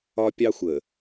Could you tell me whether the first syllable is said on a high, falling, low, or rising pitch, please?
high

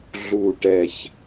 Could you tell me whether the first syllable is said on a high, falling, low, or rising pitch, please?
low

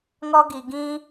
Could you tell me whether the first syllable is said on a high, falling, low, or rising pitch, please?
high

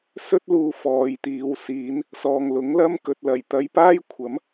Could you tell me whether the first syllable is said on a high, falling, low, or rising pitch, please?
high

